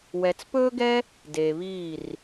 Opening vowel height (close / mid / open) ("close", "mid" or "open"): mid